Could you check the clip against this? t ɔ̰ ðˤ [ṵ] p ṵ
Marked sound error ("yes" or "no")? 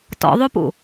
yes